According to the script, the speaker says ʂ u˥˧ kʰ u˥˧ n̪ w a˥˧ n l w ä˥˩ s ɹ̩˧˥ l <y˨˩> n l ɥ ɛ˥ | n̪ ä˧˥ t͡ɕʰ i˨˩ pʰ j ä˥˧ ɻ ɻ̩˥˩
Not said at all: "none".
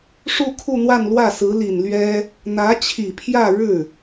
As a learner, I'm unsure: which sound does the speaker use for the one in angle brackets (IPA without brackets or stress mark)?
i˨˩